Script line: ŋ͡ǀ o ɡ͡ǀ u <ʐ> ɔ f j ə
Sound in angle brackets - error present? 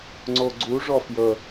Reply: no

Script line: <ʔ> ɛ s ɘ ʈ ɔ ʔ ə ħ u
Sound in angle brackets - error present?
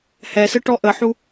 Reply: yes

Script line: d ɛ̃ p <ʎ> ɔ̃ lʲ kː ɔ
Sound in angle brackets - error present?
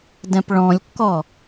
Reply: yes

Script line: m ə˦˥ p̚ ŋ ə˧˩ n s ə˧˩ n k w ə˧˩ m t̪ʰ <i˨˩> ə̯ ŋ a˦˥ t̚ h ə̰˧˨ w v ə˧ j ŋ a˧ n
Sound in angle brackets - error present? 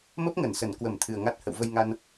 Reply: yes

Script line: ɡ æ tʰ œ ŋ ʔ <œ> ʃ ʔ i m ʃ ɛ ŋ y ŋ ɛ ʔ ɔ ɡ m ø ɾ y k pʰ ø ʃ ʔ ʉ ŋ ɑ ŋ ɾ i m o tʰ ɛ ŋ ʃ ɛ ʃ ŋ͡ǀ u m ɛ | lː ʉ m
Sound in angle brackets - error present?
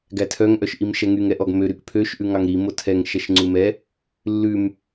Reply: no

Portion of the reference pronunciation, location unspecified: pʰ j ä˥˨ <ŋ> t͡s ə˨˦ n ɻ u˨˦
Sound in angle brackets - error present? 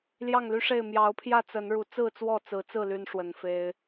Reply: yes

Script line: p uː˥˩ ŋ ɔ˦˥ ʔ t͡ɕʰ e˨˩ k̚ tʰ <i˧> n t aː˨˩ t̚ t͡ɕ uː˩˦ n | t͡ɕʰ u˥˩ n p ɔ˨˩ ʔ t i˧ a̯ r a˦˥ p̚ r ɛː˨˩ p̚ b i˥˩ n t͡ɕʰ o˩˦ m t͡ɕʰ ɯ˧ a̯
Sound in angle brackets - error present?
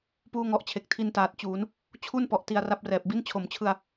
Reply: no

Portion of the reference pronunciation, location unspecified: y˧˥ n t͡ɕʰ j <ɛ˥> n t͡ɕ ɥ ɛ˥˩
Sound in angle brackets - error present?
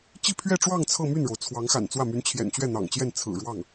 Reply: yes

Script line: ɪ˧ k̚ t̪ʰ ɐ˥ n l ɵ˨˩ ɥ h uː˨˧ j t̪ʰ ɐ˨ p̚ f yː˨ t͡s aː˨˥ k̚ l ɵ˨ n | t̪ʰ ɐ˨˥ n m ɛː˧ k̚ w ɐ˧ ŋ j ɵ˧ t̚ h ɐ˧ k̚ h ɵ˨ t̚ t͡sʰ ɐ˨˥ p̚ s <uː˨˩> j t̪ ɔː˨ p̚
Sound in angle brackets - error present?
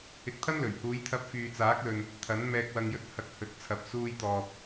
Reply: yes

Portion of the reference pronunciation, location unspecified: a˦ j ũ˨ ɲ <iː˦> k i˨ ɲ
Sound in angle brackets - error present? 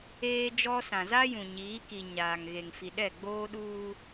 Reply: yes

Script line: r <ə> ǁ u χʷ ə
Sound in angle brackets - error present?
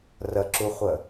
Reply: no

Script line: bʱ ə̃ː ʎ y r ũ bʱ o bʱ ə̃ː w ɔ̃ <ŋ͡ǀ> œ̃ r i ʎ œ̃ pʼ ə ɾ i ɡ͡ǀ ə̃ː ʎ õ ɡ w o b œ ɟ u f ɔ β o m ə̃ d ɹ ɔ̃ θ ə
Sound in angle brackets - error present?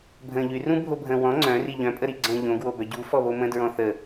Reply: no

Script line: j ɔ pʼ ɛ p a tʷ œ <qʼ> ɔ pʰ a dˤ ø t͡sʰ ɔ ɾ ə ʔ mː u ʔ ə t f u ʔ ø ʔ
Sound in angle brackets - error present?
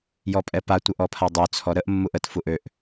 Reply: yes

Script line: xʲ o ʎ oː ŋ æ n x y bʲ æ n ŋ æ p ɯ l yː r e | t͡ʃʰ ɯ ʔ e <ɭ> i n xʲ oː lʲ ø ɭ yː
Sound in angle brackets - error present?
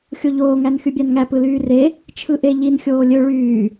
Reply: yes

